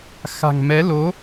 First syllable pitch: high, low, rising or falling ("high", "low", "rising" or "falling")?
low